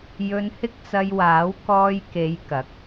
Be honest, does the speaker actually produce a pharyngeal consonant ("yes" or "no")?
no